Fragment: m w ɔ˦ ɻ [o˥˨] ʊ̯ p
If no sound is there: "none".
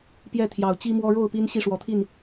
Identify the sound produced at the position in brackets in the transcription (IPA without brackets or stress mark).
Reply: o˥˨